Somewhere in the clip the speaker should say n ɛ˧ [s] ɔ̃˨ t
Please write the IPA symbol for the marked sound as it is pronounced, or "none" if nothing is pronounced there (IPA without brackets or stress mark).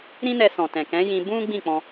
s